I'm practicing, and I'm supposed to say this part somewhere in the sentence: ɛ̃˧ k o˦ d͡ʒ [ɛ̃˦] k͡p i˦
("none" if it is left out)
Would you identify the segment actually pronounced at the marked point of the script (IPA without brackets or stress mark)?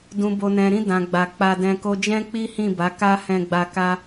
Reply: ɛ̃˦